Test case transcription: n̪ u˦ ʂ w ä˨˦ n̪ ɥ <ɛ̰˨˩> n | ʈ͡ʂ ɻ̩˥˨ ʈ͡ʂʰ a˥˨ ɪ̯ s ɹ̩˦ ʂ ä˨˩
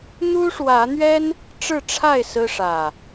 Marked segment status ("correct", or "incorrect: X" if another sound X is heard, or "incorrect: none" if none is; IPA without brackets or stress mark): incorrect: ɛ˦